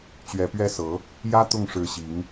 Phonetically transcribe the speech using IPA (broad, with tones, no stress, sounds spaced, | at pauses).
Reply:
t͡ɕ ɥ ɛ˧˥ p ɥ ɛ˥ s ɤ˧˥ | j ä˥ t̪ ʊ˥˩ ŋ ʂ ɻ̩˧˥ ɕ i˧˥ ŋ